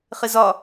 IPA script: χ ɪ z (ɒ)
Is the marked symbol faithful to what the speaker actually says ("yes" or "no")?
yes